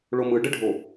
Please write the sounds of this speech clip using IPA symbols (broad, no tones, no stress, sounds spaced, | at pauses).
ɭ o m ɯ ɖ ə ɖʱ o